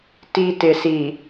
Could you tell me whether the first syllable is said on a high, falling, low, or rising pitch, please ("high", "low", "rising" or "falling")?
low